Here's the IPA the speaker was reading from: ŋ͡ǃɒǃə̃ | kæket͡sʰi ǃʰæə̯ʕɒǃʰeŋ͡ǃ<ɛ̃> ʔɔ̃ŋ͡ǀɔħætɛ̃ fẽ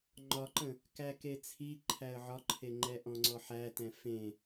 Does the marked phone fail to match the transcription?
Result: yes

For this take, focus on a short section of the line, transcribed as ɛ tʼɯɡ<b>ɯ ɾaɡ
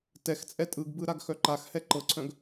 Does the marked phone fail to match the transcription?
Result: no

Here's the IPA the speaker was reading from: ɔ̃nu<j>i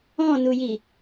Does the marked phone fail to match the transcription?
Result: no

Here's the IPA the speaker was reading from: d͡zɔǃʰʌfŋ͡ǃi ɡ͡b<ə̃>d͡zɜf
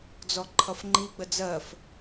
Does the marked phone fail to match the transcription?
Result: yes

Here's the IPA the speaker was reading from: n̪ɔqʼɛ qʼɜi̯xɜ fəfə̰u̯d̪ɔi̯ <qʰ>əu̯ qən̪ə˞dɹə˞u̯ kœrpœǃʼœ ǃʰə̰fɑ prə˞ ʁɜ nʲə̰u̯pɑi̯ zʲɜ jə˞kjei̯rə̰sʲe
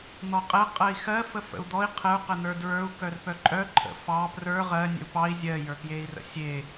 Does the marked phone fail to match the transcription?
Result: no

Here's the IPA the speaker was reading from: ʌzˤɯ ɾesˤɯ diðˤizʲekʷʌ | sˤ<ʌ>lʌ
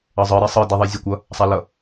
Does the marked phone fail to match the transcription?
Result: yes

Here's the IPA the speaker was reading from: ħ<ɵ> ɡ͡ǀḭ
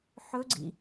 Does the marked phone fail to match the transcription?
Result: no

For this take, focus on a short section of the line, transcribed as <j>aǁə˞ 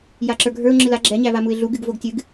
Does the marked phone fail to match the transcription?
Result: no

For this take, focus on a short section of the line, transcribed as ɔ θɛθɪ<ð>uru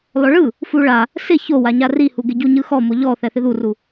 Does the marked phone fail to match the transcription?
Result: no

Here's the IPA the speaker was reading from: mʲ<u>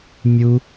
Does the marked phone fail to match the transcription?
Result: no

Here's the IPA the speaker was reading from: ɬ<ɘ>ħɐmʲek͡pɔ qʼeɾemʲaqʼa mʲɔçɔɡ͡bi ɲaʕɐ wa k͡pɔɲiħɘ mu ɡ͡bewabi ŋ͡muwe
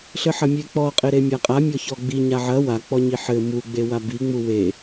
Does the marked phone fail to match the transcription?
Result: no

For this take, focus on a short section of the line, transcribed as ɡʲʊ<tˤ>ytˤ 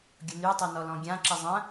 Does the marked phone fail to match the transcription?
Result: yes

